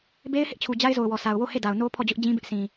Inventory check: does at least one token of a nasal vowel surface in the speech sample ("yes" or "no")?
yes